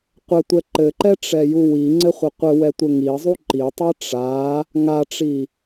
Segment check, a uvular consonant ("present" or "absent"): present